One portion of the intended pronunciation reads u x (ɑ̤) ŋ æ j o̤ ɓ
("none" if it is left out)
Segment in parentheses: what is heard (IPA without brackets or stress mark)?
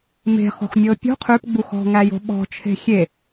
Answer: ɔ̤